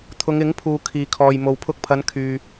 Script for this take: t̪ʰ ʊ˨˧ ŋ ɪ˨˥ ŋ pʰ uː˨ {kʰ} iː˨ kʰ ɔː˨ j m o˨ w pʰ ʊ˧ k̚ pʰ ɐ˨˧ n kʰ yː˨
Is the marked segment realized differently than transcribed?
no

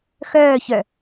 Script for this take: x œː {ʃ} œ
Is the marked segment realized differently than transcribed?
yes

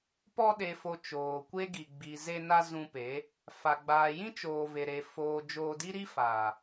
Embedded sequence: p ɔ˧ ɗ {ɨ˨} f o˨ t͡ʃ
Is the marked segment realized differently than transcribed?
yes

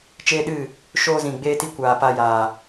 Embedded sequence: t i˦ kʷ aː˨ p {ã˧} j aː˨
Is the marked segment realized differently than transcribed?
yes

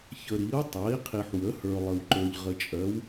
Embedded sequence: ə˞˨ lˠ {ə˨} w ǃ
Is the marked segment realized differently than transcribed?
no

